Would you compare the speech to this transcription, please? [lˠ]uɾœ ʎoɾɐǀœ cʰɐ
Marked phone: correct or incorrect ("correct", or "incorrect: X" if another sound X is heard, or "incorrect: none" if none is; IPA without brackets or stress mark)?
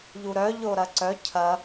incorrect: ʎ